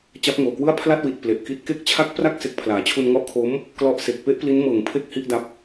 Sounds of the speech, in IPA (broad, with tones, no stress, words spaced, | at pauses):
t͡ɕa˦˥p̚ŋoː˨˩kwɯ˥˩a̯ pʰla˥˩t̚wi˨˩t̚ ple˨˩ʔki˦˥t̚ ke˦˥k̚t͡ɕʰa˦˥k̚ pra˥˩k̚ se˨˩k̚ pʰlaː˩˦t͡ɕʰu˧nŋɔ˦˥ʔkʰo˦˥m | klɔ˥˩ʔ se˨˩k̚pe˥˩ʔpli˦˥n mɤː˨˩ŋpʰe˦˥k̚ hi˦˥ʔda˦˥p̚